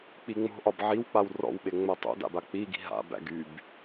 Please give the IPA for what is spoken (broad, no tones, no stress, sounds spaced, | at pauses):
k͡p i ŋ͡m o̤ ʔ ɒ b ʕ i w k͡p a w r ɔ̰ w ɓ e ŋ͡m æ tˤ o̰ d a̰ b a k͡p i ɡ i̤ ɦ a̰ b æ̰ ɡ y b